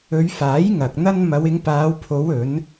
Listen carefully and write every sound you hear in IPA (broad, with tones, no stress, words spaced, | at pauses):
ɵ˨˧ɥfaː˨˥j ŋɐ˨k̚n̪ɐ˥n mɐ˨˧wɪ˨˧ŋpaː˨˧w pʰo˨˧wɵ˨˧n